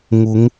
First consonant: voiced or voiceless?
voiced